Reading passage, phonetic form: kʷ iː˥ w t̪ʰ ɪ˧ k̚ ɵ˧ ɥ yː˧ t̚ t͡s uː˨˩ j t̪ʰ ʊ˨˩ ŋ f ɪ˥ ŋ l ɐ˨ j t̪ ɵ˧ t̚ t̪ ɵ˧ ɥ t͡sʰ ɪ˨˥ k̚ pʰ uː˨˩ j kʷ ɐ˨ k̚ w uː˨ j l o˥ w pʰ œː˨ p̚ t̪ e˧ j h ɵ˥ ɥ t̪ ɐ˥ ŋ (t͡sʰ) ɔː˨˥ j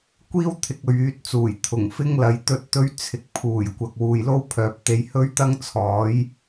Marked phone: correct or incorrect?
correct